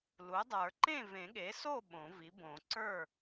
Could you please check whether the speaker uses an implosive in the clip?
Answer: yes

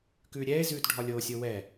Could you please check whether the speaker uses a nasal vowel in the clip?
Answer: no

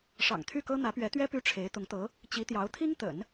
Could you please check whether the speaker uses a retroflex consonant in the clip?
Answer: yes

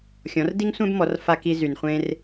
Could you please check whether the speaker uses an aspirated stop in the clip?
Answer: no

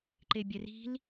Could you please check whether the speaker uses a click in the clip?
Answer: yes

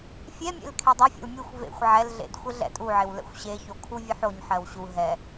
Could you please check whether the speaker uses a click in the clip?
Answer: no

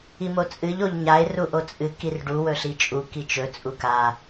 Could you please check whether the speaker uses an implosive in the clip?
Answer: no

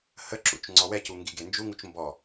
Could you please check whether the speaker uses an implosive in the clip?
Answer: no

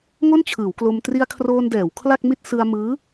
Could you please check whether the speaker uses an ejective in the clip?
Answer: no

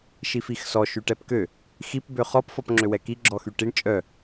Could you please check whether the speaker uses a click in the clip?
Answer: yes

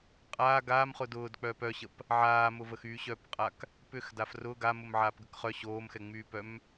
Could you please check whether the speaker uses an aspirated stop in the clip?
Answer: no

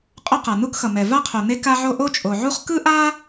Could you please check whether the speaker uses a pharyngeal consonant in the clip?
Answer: yes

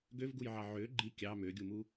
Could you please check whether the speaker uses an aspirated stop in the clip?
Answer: no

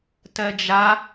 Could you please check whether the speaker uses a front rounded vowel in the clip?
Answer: no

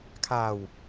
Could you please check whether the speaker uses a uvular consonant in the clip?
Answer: no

